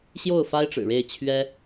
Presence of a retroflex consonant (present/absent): present